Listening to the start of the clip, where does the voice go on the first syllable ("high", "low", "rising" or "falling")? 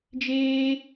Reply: high